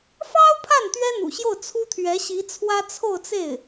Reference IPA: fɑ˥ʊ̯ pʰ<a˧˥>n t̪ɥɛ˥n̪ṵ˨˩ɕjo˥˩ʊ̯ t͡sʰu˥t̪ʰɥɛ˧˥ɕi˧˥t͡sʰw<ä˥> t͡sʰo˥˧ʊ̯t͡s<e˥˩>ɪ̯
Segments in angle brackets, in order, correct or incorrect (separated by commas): incorrect, correct, correct